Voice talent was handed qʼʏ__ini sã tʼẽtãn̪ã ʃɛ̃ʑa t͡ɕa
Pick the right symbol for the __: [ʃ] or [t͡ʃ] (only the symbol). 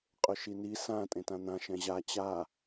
ʃ